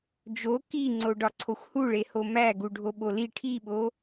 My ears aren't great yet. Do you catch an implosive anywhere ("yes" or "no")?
yes